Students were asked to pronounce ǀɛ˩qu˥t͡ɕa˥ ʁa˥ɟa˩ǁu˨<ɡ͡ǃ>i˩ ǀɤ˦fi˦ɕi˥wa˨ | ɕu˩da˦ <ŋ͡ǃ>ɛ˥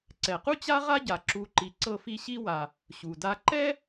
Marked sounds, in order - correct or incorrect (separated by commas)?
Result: incorrect, incorrect